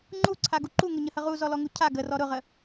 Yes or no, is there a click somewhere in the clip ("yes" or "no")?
yes